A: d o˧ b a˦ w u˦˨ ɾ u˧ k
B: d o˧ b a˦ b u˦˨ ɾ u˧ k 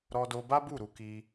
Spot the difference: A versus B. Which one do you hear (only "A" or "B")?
B